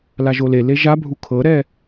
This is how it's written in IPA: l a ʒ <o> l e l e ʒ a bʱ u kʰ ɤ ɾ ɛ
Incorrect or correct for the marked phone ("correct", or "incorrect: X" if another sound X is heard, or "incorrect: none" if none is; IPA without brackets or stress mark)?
correct